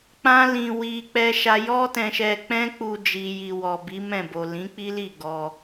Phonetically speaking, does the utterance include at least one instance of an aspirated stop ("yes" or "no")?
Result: no